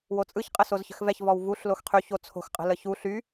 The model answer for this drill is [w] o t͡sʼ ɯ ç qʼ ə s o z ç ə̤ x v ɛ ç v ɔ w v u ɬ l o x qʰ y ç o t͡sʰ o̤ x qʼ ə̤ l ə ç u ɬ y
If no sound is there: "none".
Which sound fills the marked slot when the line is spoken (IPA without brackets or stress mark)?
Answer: w